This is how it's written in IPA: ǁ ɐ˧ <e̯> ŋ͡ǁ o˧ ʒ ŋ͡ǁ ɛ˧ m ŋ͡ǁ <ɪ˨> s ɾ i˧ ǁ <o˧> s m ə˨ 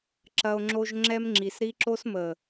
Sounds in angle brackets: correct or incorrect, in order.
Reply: incorrect, incorrect, correct

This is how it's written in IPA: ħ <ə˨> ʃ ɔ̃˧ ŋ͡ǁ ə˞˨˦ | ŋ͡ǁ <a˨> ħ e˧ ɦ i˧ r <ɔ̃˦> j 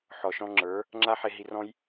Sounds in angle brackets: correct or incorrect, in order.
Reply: incorrect, incorrect, correct

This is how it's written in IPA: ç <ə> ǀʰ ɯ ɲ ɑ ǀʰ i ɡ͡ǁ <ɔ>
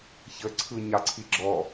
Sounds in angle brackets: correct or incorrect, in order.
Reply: correct, correct

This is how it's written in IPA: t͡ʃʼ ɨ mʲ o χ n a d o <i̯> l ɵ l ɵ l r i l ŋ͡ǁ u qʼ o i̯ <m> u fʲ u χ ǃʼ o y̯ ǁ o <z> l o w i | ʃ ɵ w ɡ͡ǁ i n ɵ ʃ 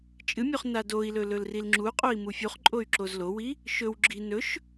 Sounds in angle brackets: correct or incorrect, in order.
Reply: correct, correct, correct

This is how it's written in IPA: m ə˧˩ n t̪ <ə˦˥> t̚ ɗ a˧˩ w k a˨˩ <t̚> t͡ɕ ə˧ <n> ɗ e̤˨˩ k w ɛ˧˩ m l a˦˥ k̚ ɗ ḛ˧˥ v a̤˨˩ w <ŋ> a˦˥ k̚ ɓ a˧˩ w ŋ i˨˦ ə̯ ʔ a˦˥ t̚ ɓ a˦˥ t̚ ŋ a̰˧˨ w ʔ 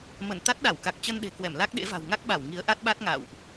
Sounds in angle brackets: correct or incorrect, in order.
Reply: incorrect, incorrect, correct, correct

